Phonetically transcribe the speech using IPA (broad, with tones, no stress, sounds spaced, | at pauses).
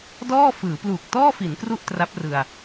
d ɔː˥˩ f ɯː˩˦ p l uː˨˩ k̚ t ɔː˥˩ f i˩˦ n k r u˥˩ ʔ t r a˦˥ p̚ r ɯ˧ a̯